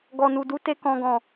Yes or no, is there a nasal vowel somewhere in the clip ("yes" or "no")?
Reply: yes